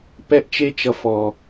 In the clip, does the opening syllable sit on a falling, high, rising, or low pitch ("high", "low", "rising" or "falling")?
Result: high